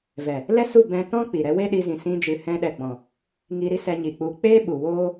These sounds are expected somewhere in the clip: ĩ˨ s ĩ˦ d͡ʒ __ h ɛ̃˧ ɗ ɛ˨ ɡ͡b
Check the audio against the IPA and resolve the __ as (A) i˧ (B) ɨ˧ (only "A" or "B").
B